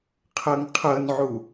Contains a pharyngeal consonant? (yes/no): yes